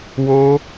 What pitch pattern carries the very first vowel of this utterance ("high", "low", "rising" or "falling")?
high